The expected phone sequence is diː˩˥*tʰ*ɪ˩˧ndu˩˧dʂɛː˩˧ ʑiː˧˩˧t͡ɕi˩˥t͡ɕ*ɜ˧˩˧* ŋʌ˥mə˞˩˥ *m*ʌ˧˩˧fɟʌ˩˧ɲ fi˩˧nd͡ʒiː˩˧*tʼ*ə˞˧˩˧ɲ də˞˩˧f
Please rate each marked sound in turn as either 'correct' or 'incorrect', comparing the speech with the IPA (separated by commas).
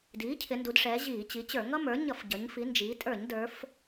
incorrect, incorrect, incorrect, correct